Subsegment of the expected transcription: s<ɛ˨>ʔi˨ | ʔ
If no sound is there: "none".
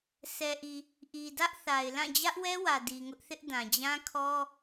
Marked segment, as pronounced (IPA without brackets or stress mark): ɛ˨